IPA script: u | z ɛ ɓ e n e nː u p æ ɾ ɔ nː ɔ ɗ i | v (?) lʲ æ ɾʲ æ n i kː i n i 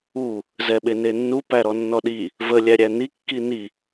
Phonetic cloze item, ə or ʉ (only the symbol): ə